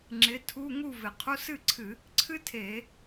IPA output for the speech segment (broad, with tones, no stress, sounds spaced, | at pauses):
ŋ͡ǁ ɪ˨˥ tʰ u˧˥˧ ŋ u˥˧ v ɪ˨˩ qʰ u˧˥˧ s ɨ˥˧ ǀʰ ɨ˧˩˧ | ǀʰ ɨ˥ tʰ e˧˩˧